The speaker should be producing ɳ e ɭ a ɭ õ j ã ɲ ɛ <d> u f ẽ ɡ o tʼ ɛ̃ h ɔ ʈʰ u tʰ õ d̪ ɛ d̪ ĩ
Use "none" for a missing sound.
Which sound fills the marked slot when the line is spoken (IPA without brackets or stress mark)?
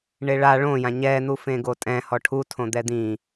n̪